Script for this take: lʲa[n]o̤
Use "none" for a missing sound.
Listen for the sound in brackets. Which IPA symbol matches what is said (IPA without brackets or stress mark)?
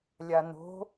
n